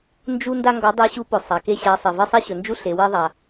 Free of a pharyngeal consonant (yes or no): yes